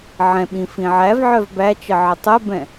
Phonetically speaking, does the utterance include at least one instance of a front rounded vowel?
yes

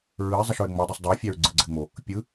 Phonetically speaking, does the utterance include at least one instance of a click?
yes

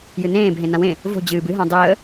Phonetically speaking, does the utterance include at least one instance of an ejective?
no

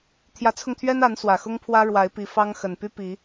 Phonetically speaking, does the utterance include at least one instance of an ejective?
no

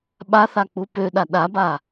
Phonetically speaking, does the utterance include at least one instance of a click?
no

